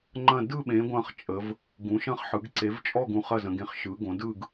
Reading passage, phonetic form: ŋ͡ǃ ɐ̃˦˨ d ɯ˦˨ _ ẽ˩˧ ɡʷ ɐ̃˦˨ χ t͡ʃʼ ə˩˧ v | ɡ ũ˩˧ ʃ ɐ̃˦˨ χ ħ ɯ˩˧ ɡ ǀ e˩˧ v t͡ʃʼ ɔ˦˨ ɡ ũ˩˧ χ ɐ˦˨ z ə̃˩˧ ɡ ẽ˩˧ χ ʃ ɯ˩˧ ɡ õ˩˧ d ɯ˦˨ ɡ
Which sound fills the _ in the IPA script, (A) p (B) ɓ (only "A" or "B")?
B